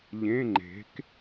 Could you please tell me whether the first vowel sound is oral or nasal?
nasal